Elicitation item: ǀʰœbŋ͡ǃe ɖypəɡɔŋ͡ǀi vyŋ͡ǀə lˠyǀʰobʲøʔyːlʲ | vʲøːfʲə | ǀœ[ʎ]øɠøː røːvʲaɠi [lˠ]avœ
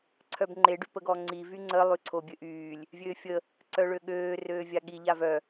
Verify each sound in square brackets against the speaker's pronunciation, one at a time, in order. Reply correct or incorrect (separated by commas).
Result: incorrect, incorrect